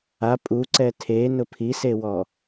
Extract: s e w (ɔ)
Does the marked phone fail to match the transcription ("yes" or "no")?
no